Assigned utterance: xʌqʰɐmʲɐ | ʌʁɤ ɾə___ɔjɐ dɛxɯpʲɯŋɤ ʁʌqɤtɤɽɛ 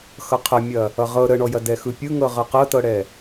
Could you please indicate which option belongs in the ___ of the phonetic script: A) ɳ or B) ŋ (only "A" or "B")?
A